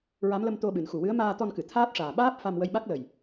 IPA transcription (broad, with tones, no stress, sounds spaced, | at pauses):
ɹ a˧˥ m l ə˧ m t̪ o˧ ɓ ɨ˨˩˨ n x u˨˩ w ɨ˧˥ ə̯ m aː˧ t̪ ɔ˧ n k ɨ˨˩˨ t̪ʰ aː˦˥ t̚ ʂ aː˨˩ ɓ aː˦˥ p̚ f a˧ m w ə˧ j ɓ a˦˥ k̚ l ə˨˩ j